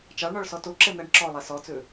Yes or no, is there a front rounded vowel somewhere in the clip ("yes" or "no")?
no